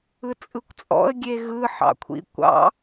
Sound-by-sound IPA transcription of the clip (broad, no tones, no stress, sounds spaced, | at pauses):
ɯ t͡sʼ ɯ kʷ t͡sʼ ɔ̰ ə̯ ɡʲ e ɣ ɯ ħ ɑ̰ kʷʰ ḭ kʷ ɑ̰